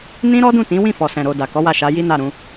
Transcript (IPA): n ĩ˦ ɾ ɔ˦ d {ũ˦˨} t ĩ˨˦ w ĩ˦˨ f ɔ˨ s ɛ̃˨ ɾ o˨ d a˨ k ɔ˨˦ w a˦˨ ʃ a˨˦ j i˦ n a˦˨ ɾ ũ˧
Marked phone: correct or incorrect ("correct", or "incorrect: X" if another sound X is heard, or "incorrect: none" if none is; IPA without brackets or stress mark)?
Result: correct